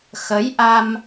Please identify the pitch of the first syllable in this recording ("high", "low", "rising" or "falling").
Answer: rising